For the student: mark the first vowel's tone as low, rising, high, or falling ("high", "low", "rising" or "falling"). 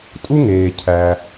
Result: high